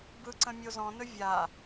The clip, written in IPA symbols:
b ɯ ǀ ə̃ mʲ o z ɔ̃ n ɵ vʲ a

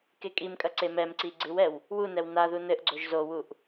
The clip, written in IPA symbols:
k e kʼ i m kʼ ɐ ǀ e m ɛ m ǀ i ɡ͡ǀ ɨ w ɛ w | w u n ɛ w n a ð u n ɘ ʔ ɡ͡ǀ o ʒ z o w u ʔ

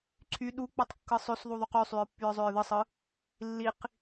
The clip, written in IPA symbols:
ǀʰ y ɗ u k͡p u tˤ kː ɯ sˤ ø s ðˤ u ðˤ u q y sˤ y ɹ pː y ɹ zˤ ø ɹ ð ɯ sˤ ɯ | lː i q

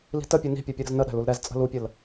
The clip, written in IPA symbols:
l i̤ t ə pʲ u n i̤ pʲ ɛ pʲ u ɾ ə̤ z n ə ɗ æ̤ l u l ɾ ɛ z t͡sʼ ə̤ l u pʲ ə l

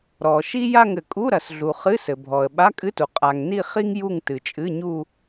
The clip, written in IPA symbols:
ɾ ɔ˩ ʃ i˥ j a˥˧ ŋ ɘ˩ kʼ u˧˥˧ ɾ ɐ˩ s ɮ u˩ χ ɨ˧˥˧ s ɘ˩ bʱ ɔ˩ ə̯ ɓ a˧˥˧ kʼ ɨ˧˥˧ t u˩ qʼ a˩ ŋ n i˥˧ χ i˥ ŋ j u˥˧ ŋ t ɨ˩ t͡ʃʼ ɨ˧˥˧ ɲ u˥˧

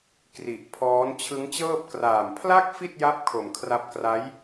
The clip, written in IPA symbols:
k r i˨˩ ʔ pʰ ɔː˦˥ n t͡ɕʰ ɯ˦˥ ŋ t͡ɕ ɤː˥˩ p̚ k r aː˨˩ m pʰ l a˥˩ k̚ f i˥˩ t̚ j a˦˥ p̚ kʰ o˨˩ m kʰ r a˦˥ p̚ k r a˦˥ j

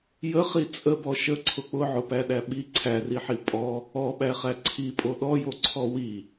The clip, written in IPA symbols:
j ə χ i t͡sʼ ə b ɔ ʃ ə ǀʰ ʊ k͡p ʊ ʕ ʊ p æ ɗ æ ɓ i ǀʰ æ r i ħ i pʼ ɔ | ɔ ɓ æ χ æ ǀʰ i pʼ o ɗ ɔ j o ǀʰ ɔ w i

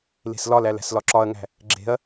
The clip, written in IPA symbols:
l e̤ s l ɒ l æ l æ̤ s l ɒ ǁ ɒ ɐ̯ ŋ æ̤ | ɡ͡ǁ e̤ ɐ̯

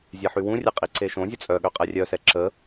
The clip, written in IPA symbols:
zʲ ɛ ħ y w ũ rʲ ɛ qʼ i ǀ e ʃ õ zʲ ə t͡sʼ œ ɠ ø qʼ ɛ rʲ œ s ɛ ǁ ə

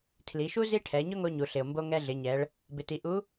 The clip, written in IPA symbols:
tʰ l i˩˧ ʃ u˥ z i˥ ʈʰ ɛ˩˧ ɲ ʊ˥ ŋ o˧ ɲ u˩ ɬ ɪ˩ o̯ m b o˧ ŋ ɛ˧ ɮ ɪ˩˧ ɲ ɛ˩˧ ɭ | b ɪ˩ t i˩ ʔ u˧˥

